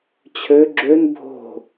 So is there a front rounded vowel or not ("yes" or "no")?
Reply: yes